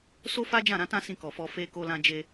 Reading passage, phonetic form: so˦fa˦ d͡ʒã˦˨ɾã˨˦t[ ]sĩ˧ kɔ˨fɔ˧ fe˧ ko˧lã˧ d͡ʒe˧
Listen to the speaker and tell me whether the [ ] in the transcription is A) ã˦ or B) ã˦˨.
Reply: A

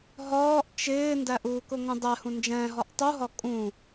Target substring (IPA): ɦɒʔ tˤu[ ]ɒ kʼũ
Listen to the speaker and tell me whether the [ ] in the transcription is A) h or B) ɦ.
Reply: B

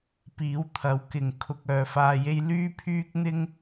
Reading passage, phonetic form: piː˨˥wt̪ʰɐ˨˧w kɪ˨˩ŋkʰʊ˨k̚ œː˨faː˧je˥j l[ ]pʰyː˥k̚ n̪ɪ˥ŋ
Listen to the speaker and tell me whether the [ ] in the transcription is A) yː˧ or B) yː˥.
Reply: B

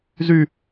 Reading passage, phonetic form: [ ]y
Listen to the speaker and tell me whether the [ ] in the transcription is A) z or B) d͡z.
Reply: A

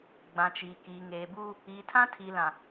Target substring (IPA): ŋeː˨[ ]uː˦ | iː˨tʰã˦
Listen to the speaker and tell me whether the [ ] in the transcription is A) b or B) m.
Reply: A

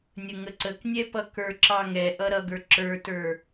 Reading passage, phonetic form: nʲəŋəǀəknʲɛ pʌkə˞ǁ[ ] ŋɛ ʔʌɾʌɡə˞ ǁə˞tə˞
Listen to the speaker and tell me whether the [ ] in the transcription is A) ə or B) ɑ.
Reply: B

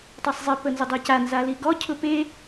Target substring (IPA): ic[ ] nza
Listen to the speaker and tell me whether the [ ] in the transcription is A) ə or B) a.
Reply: B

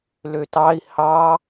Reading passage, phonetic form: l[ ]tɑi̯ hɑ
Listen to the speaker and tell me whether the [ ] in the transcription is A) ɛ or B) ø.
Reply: B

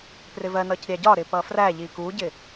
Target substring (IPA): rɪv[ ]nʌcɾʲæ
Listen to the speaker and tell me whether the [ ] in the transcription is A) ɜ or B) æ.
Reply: A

